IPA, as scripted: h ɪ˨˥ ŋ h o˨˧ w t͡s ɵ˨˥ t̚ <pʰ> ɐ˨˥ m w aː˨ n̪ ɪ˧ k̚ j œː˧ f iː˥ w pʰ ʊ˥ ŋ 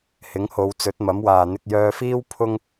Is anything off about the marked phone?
yes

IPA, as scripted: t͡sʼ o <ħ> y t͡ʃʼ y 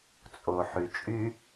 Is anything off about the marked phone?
no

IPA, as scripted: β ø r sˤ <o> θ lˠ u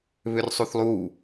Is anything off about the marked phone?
yes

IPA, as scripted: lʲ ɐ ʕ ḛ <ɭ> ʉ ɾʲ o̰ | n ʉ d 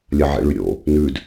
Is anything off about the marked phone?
no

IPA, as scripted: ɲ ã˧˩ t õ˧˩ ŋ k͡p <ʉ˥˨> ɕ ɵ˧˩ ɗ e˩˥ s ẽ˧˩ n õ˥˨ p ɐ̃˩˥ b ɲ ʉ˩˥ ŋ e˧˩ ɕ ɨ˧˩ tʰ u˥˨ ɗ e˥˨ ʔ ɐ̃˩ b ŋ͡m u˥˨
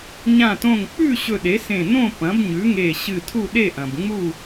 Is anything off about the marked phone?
no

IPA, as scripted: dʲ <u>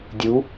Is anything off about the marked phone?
no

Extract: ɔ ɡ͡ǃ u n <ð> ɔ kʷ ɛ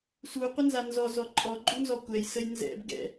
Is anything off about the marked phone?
yes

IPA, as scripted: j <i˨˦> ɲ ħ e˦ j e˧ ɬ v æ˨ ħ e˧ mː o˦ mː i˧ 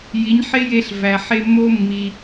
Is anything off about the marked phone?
no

